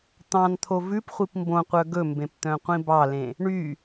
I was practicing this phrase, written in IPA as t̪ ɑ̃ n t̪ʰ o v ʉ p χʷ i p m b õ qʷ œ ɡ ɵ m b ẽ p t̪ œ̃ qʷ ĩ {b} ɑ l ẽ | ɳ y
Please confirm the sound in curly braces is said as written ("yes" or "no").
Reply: yes